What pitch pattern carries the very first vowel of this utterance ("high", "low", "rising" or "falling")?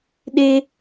high